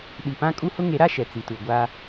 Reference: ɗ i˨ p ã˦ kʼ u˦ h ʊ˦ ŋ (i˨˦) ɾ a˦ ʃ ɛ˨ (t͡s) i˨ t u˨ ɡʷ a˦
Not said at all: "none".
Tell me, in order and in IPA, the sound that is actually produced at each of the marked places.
e˨˦, t͡s

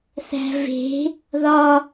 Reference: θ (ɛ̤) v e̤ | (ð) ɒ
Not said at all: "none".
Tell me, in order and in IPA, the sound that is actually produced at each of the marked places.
æ̤, ð

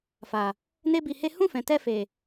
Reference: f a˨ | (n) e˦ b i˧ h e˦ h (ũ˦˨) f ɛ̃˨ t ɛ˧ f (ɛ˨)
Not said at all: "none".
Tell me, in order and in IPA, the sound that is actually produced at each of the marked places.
n, ũ˦˨, e˨

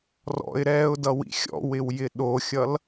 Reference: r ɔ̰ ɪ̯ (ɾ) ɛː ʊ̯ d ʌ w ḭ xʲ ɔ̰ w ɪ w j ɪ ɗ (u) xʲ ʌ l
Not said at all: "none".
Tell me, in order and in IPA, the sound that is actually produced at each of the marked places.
ɾ, o

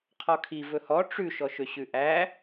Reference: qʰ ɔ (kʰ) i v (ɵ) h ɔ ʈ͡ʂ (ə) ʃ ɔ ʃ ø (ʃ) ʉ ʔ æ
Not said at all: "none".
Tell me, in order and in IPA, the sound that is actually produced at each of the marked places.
kʰ, ɵ, ʉ, ɕ

